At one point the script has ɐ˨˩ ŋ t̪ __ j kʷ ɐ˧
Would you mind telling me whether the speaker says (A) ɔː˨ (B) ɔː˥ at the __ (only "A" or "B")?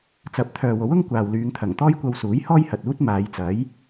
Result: B